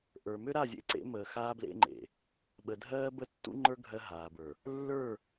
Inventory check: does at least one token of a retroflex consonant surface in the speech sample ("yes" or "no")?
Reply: no